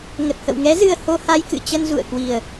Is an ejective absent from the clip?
yes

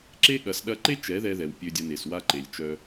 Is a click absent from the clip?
no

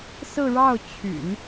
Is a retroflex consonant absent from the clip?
no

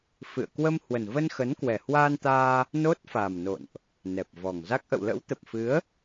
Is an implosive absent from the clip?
yes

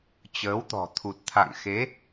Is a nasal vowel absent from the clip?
yes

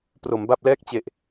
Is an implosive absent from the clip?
yes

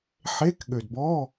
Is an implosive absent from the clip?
no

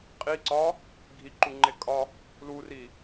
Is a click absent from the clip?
no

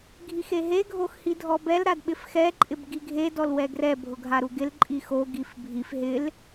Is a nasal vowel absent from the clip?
yes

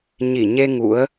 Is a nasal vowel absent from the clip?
yes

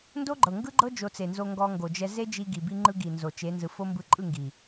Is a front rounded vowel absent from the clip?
yes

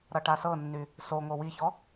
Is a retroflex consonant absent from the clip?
no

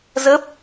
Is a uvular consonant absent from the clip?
yes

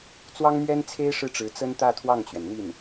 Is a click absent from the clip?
yes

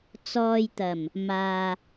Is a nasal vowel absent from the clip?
yes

